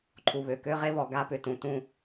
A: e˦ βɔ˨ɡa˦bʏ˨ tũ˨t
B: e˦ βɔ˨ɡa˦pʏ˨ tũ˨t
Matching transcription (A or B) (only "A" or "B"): B